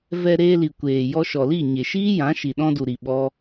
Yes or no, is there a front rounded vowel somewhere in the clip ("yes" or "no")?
no